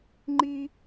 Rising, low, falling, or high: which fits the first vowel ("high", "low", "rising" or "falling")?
high